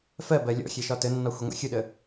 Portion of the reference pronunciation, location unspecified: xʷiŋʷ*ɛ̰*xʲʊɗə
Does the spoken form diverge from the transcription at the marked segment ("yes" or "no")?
no